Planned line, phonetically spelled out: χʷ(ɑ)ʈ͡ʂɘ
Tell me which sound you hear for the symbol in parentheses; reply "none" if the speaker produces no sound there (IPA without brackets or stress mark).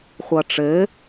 ʌ